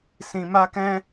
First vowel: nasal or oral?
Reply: nasal